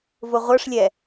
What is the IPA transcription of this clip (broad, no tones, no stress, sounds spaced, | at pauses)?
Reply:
v ʊ ʁʷ ə˞ ʂ lʲ ɛ